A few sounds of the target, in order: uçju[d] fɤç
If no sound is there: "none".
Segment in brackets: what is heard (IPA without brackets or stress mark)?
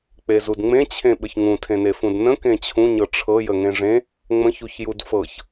d